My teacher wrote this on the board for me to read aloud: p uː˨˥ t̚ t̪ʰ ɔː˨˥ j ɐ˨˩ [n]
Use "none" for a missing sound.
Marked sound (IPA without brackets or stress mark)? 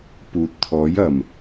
m